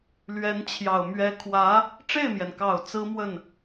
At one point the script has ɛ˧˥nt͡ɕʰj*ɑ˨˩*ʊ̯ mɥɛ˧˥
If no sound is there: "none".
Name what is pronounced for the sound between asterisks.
ɑ˨˩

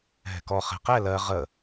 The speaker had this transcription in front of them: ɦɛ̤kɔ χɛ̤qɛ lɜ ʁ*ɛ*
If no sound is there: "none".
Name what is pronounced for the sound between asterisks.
ə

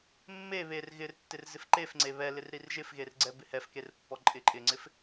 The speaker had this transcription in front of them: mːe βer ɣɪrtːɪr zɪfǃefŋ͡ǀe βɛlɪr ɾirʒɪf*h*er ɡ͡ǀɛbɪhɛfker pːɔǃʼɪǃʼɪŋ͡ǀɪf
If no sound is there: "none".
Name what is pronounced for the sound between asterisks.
ɣ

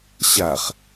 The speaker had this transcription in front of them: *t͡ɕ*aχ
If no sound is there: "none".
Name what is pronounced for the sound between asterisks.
ɕ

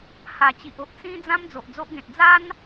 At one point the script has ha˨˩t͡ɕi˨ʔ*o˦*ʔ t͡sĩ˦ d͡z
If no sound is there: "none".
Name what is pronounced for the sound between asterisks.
o˦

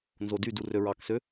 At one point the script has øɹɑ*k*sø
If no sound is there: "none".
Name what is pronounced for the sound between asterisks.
k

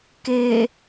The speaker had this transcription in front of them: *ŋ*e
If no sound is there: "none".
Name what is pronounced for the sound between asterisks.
k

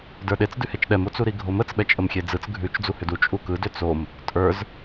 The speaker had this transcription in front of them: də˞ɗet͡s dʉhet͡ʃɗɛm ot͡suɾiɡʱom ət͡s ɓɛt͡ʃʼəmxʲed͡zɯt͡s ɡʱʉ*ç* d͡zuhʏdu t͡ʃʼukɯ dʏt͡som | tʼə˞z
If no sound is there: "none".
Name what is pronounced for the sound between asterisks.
t͡ʃ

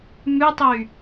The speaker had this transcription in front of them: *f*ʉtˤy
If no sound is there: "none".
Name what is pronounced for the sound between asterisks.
m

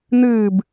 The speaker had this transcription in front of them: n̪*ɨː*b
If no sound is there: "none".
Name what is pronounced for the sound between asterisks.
ɨː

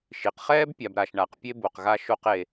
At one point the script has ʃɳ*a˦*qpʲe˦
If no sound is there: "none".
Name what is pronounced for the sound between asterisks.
a˩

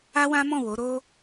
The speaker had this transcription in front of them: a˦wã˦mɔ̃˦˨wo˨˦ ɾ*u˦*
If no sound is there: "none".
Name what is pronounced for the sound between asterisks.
o˦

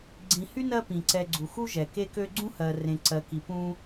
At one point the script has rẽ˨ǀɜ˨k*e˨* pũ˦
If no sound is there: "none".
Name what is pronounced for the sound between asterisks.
i˨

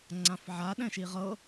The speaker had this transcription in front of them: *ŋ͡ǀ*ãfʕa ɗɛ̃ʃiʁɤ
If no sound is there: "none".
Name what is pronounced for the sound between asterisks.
ŋ͡ǀ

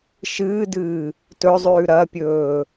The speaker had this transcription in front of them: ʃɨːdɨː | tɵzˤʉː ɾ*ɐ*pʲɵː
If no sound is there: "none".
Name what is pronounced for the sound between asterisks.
ɐ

